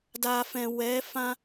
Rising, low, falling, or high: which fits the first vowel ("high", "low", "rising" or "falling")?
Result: low